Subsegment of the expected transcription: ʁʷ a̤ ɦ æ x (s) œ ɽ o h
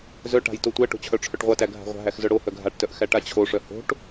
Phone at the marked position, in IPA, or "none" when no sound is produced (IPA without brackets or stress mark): z